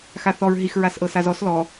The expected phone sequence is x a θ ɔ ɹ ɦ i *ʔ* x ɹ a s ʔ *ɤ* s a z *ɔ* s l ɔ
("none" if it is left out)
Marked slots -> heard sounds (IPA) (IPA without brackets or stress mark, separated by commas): none, ɤ, ɔ